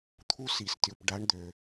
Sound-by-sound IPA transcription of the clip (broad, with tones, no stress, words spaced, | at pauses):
t̪ʰu˦si˨stʲu˨p ɖa˨˦ɳd̪ø˨